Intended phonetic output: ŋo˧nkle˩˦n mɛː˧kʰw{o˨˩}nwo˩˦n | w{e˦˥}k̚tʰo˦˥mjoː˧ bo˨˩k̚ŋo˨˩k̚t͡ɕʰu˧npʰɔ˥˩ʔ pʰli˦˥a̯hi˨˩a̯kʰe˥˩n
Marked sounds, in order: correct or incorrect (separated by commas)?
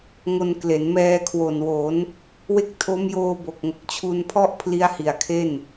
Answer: correct, correct